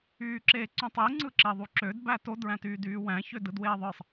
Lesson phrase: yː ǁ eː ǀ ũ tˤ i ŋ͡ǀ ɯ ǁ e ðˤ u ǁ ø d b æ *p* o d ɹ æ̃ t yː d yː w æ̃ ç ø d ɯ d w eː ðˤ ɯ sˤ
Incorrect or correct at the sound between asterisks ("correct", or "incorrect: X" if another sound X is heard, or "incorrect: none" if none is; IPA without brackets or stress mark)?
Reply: incorrect: t